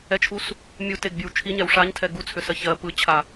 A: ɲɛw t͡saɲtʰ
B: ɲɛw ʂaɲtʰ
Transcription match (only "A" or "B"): B